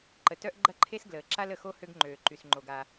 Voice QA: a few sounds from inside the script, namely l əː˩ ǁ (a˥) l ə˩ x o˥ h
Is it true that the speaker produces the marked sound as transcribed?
yes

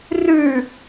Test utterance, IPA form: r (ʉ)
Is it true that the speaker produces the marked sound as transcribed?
yes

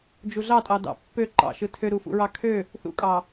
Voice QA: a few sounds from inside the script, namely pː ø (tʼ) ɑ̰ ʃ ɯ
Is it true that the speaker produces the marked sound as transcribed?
no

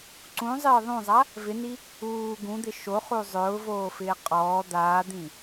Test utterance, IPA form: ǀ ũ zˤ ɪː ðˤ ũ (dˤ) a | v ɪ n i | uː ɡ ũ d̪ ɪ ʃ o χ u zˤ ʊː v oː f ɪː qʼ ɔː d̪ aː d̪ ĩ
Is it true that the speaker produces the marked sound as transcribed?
no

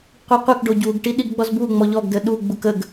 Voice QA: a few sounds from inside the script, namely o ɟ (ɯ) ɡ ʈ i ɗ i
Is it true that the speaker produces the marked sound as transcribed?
no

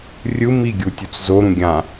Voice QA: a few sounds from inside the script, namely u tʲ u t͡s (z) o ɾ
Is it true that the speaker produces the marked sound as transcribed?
yes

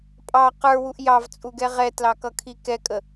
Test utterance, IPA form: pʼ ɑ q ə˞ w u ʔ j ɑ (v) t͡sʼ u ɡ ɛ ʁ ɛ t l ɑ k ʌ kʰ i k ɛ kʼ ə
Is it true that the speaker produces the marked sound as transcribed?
yes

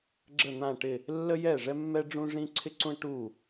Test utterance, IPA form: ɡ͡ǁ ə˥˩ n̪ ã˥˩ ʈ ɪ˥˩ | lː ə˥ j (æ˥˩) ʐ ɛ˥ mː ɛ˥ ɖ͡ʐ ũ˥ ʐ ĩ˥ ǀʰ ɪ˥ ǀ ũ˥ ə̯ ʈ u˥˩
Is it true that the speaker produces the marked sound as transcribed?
no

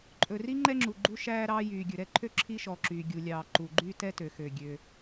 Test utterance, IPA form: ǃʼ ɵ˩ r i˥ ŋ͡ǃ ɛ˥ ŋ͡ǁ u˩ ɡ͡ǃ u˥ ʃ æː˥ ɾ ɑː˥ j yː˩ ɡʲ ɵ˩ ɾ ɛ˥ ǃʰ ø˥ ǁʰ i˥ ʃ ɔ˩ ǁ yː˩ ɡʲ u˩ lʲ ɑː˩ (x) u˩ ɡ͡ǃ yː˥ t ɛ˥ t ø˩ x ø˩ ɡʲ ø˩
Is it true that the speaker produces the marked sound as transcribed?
no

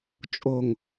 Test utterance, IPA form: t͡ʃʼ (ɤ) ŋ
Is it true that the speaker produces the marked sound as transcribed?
no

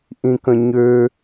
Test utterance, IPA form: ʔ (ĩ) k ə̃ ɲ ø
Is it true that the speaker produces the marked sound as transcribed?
yes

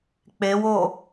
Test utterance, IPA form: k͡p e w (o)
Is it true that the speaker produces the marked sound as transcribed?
yes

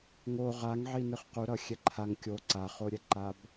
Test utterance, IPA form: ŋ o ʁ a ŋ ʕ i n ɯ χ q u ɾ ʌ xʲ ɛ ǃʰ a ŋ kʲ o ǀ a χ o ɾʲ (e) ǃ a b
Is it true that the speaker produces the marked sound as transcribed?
no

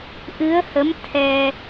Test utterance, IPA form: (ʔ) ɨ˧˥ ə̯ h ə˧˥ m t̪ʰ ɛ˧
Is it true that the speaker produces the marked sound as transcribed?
yes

